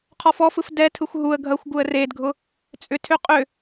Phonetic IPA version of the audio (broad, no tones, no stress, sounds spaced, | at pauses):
qʰ ɔ f ɔ f ɯ f d ɛ tʰ ɯ xʷ ɦ u ə̯ ɡʱ ɐ xʷ ɡ u ə̯ r e d ɡʱ ʊ | t͡sʼ ʏ tʰ ʏ qʼ ʏ